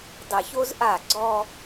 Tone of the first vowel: low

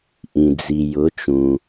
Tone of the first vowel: low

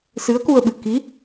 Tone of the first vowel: rising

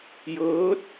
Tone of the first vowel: rising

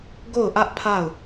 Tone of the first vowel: falling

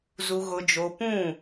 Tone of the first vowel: low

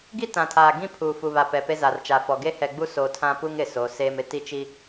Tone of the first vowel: high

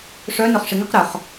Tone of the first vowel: rising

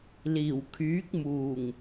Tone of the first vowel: low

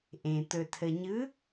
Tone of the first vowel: low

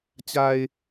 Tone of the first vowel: low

